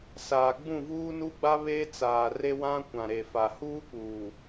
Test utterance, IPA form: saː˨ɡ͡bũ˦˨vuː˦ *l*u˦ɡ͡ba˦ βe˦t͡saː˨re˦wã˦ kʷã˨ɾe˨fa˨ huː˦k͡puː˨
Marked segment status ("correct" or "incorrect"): incorrect